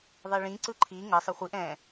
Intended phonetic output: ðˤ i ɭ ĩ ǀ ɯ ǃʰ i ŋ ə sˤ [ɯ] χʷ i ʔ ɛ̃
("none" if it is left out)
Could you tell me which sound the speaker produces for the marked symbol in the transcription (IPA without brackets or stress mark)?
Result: ə